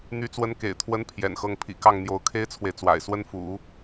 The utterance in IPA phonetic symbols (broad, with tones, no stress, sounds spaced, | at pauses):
n̪ y˧˥ t͡s w ə˧˥ n k ḛ˨˩ ɪ̯ t̪ʰ w ə˧˥ n pʰ j ɛ̰˨˩ n x ɤ˥˩ ŋ pʰ ḭ˨˩ k ɑ˥˩ ŋ n̪ j o˧˥ ʊ̯ kʰ e˥ ɪ̯ t͡sʰ w e˨ ɪ̯ t͡s w a̰˨˩ ɪ̯ s w ə˥ n f ṵ˨˩˦